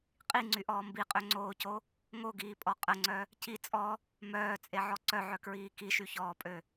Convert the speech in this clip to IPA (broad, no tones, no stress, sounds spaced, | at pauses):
qʼ i ŋ͡ǀ y ʔ ɔː m b i qʼ ø ŋ͡ǀ oː c o | ŋ o ɡ iː pʼ ɔ qʼ ə ŋ͡ǀ œ | c i t͡sʼ ɔ | m œː t͡sʼ e ʕ ɔ ǀ œ ʕ œ k ɹ iː k i ʃ y ç ɔː pʼ ø